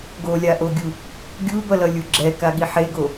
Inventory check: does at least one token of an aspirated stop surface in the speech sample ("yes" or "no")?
no